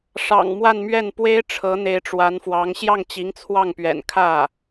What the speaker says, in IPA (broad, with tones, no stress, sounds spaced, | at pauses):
ʂ ɑ̰˨˩ ŋ m w a˥˧ n m ɥ ɛ˥˩ n p w e˥ ɪ̯ ʈ͡ʂʰ ɤ˧˥ n̪ e˧˥ ɪ̯ ʈ͡ʂ w a˧˥ n f w ɑ˧˥ ŋ ɕ j ɑ˥˩ ŋ t͡ɕ i˧˥ ŋ t͡sʰ w ɑ˥˩ ŋ p ɥ ɛ̰˨˩ n kʰ ä˥˩